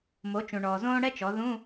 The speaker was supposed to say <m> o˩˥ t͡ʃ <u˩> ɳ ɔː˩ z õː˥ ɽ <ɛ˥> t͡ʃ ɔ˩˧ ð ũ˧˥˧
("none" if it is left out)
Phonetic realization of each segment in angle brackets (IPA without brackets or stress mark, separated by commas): m, ũ˩, ɛ˥